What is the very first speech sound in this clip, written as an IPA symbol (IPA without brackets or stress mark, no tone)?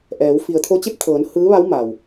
ʔ